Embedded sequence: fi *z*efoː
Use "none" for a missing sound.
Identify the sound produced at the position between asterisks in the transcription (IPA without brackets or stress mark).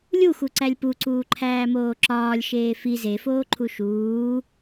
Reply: z